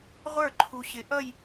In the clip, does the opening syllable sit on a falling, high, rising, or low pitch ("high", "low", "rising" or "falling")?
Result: falling